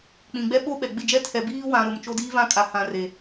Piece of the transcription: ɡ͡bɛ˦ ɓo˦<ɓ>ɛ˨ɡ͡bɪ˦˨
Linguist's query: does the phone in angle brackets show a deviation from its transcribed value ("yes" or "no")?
no